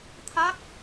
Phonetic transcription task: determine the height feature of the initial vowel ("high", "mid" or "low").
low